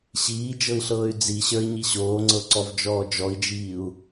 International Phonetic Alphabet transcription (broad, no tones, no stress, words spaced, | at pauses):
ɕiːd͡ʒɤi̯ɬɤːy̯ d͡ziɕə˞i̯ɲi ɕoːŋ͡ǀɤǀɔvd͡ʒɔː d͡ʒɔi̯d͡ʒiːu̯